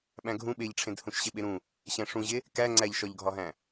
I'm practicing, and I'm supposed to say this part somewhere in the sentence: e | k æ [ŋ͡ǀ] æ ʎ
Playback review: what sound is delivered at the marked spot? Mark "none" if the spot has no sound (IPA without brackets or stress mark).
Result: ŋ͡ǀ